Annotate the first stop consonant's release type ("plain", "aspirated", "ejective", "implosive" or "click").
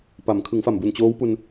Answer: plain